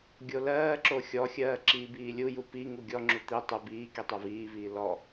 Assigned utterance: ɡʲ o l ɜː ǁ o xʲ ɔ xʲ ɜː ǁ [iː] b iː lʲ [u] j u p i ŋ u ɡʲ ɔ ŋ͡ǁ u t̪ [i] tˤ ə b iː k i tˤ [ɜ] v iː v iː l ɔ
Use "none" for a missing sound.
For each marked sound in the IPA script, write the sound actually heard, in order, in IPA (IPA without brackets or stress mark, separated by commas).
iː, u, i, ɜ